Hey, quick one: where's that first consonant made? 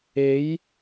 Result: palate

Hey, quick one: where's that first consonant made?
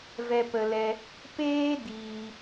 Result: lips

